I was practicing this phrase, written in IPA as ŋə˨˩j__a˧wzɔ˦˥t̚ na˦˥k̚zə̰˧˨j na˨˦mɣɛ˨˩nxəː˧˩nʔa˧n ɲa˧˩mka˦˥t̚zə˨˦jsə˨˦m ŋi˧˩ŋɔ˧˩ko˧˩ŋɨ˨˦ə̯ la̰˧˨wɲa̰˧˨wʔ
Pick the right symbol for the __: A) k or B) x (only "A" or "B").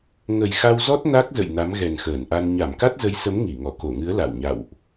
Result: B